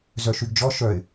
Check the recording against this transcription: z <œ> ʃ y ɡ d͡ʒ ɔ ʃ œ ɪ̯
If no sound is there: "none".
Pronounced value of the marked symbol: œ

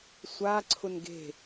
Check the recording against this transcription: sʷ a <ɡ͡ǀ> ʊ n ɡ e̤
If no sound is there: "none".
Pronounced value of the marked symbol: ǀʰ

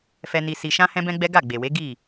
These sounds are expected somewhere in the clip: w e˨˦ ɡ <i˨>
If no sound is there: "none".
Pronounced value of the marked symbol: i˦˨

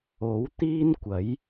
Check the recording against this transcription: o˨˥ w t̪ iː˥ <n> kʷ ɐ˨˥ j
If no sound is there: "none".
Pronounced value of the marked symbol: n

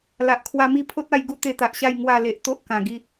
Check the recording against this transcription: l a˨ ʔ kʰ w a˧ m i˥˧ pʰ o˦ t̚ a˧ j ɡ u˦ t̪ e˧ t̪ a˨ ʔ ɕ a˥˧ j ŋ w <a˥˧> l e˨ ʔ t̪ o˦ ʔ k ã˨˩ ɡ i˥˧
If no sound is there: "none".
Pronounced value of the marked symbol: a˥˧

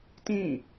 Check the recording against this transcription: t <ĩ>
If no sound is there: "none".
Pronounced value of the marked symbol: ĩ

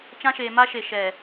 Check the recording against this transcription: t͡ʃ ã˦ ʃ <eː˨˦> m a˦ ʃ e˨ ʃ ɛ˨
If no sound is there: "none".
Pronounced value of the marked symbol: eː˨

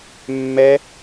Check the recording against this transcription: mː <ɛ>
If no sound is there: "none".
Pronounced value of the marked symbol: ɛ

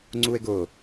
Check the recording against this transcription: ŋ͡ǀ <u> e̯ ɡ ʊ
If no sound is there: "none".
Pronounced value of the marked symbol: u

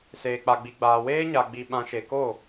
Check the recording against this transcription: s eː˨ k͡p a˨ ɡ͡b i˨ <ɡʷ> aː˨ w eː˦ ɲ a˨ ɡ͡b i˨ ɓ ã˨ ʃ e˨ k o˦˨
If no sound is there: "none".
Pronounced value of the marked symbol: ɡ͡b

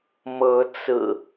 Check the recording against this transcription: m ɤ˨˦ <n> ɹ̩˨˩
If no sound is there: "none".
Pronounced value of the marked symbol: t͡s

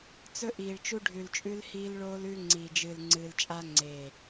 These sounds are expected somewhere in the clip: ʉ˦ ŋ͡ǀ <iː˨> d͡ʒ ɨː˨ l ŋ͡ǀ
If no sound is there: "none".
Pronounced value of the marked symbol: iː˨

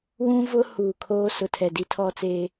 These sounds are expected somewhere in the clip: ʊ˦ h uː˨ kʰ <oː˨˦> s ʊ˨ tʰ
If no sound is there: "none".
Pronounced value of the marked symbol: oː˦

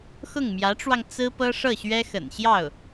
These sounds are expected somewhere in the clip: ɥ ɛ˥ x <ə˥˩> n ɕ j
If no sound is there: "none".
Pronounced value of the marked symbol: ə̰˨˩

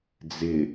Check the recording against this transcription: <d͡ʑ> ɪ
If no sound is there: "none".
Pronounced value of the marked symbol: d͡z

